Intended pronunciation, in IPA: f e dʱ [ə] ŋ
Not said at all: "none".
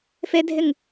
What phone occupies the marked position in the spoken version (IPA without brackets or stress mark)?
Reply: ɪ